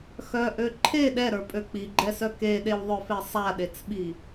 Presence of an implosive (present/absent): present